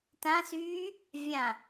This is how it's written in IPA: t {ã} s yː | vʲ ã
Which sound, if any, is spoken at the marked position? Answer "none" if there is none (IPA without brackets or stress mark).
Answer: ã